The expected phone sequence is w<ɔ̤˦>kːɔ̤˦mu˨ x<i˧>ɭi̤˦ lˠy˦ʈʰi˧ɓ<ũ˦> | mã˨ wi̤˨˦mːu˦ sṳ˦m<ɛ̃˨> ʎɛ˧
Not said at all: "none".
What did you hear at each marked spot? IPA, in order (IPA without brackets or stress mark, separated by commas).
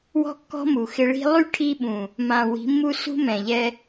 ɔ̤˦, ɪ˧, ũ˨, ɛ̃˨